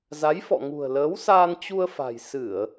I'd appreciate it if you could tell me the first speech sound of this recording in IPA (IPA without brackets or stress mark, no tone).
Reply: z